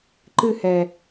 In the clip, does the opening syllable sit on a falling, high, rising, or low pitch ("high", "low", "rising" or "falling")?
falling